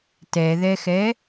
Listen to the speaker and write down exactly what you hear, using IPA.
tɛðɛxɛ

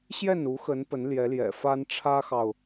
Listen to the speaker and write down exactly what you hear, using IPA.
ɕjɛ˥˨nu˨˦xə˨˦n pə˨˦nljɛ˨˦ljɛ̰˨˩fa˦n ʈ͡ʂʰä˦xɑ˨ʊ̯

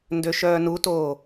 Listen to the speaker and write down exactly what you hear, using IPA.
ndøʃœːnutoː

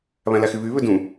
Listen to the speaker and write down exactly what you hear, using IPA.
βɐ̃lɐxɨβʉ βɵdũ

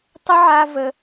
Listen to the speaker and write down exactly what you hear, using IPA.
tˤʊ˥ ʕa˥ və˥

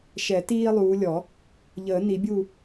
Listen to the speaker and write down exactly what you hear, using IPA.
ʃɛ˨˩˦ tiː˦lˠuː˨˦lʲɔ˨˩˦ | ʎəː˨˩˦ni˨˩˦bʲu˦˨

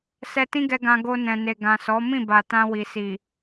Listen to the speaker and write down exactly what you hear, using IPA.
sɛ˧tĩ˦ɡɛ˧ɡã˧ ɡo˧nɛ̃˨ne˨ ɡã˨sɔ˨˦ mĩ˦˨ba˨tã˧wi˨ si˨

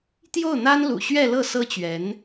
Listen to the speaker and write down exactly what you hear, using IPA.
t̪jo˥˩ʊ̯n̪a˥n lṵ˨˩ɕɥɛ˥˧lɤ˥˩ sɤ˥t͡ɕɥɛ˧˥n

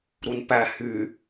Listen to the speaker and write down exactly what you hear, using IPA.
ɾunpæ hy

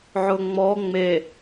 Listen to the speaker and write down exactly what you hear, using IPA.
ʕʊŋ͡mɔ ŋ͡me

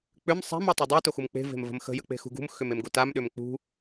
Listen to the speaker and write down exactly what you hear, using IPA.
k͡pʏm sˤe̤m otˤodˤo toxumk͡pe̤ ve̤mvə̤m xə̤ jək͡pe̤xṳɡṳm xʏmemɡotam ɗʏmk͡pṳ

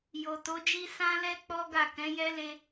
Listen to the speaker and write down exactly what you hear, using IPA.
jo˨to˨˦d͡ʒi˦ sã˦lɛ˦ k͡pɔ˦ɡa˦˨ kɛ̃˨˦ jɛ˦le˧

